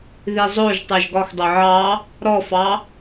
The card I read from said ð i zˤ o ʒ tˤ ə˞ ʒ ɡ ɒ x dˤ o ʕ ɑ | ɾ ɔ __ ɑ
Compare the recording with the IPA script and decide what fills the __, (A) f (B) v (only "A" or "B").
A